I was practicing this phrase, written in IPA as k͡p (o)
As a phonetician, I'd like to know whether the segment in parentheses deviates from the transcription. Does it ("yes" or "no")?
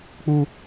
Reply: yes